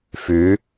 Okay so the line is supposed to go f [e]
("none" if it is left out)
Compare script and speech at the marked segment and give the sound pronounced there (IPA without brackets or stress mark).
y